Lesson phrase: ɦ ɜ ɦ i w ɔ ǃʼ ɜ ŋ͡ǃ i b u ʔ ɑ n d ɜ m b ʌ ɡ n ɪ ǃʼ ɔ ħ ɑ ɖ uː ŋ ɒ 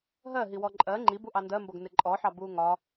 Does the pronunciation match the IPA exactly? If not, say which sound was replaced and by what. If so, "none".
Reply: ɖ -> b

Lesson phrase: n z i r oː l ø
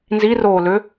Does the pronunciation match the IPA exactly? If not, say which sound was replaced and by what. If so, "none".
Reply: none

